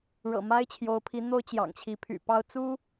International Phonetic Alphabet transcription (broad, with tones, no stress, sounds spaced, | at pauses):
ɻ ɤ̰˨˩ m a˥ ɪ̯ t͡ɕʰ j o˧˥ ʊ̯ pʰ i˧˥ n̪ o˥ ʊ̯ t͡ɕ j ɑ̰˨˩ ŋ t͡ɕʰ i˧˥ pʰ y̰˨˩ p ɑ˥ ʊ̯ t͡s u˥